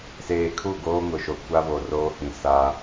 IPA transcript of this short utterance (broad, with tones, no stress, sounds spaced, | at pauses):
s eː˨ kʰ u˦˨ ɡ oː˦ ŋ ʊ˨ ʃ o˨ kʷ a˦ β o˨ r oː˦ h ĩ˨ s a˦